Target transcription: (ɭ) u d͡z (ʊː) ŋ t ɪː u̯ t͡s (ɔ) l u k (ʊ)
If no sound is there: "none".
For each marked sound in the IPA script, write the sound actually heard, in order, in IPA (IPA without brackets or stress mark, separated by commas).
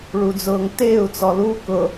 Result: ɭ, ʊː, ɔ, ʊ